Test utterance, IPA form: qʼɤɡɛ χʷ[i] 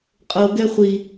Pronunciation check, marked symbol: correct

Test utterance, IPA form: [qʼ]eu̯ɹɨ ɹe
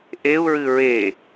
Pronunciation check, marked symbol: incorrect: ʔ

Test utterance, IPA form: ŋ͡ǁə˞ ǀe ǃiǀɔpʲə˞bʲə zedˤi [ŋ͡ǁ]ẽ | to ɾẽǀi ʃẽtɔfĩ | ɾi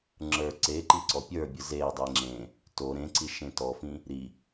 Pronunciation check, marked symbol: correct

